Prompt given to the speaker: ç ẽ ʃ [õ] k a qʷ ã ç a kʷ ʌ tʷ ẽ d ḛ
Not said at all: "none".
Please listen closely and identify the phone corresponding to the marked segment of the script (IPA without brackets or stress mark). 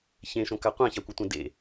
õ